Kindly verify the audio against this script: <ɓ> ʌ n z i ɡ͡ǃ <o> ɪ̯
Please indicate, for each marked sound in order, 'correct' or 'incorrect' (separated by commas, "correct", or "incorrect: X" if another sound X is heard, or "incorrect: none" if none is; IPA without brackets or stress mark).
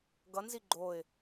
incorrect: ɡ, correct